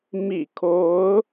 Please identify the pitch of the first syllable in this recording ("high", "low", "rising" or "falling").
low